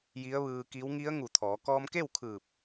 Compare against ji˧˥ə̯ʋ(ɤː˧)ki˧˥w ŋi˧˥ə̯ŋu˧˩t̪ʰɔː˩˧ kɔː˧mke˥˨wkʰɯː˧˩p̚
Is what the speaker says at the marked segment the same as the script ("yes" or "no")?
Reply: no